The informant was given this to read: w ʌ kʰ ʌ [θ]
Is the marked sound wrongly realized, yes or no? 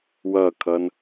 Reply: yes